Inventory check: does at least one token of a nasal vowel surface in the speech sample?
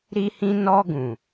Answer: yes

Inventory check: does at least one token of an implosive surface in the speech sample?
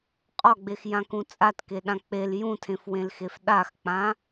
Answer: yes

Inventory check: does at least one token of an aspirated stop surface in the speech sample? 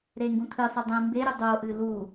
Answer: yes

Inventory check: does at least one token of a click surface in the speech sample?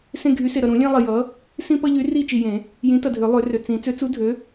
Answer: no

